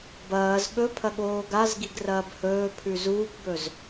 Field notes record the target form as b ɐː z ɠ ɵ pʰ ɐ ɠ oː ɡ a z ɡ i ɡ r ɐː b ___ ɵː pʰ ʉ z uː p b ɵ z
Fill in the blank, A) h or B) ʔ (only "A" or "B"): A